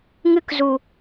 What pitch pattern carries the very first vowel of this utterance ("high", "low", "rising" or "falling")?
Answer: high